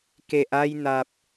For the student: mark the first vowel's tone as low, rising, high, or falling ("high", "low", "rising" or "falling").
low